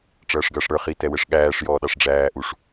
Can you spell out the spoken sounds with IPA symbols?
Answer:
ʈ͡ʂ ʌː ʂ ɡ ʌː ʂ ɽ ə˞ χ i t ɛ w ɛ ʂ ɠ æː ʂ j ɔː ɗ ɑ ʂ ɖ͡ʐ æː ʔ u ʂ

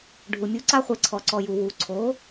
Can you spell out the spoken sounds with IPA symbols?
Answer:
ɖʱ u˩ mʲ u˩˥ ǀ a˥ χʷ e˧ ǀʰ ɔ˩ ǀ ɔ˩ j u˩ w u˩ ǀʰ o˩˥

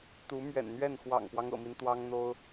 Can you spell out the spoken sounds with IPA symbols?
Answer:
t̪ u˧˥ m ɥ ɛ̰˨˩ n n̪ ɥ ɛ˥˩ n x w ɑ̰˨˩ ŋ p w ɑ˦ ŋ ɤ̰˨˩ m i˦ n t̪ w ɑ˥ ŋ n̪ o˥ ʊ̯

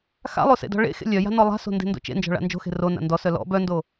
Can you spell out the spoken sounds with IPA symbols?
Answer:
x a̰ lˠ o s ḛ d ɔ̤ ɭ ḛ x ḛ lʲ œ j a̤ n ɔ lˠ a̤ s o̤ n d e̤ n d o̰ t͡ʃ ḛ n d͡ʒ ɔ̤ ɭ a̰ n d͡ʒ o̤ x e̤ r o n a̰ n d ɔ s œ l ɔ̰ b œ n d o

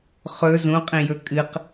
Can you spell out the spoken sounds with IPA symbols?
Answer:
χ ɵ z ũ qʼ ĩ j ɵ kʼ ɨ q

